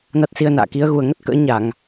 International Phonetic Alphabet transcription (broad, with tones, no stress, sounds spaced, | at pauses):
n a˦˥ t̚ s i˧ ə̯ n a̰ː˧˨ k i˨˦ ə̯ ɣ u˨˩ ə̯ ŋ ə˦˥ t̚ k ə̰ː˧˥ ɲ a˧˩˨ ŋ